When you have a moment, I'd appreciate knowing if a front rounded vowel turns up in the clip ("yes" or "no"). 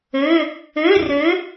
yes